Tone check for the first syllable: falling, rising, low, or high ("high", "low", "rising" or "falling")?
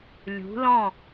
rising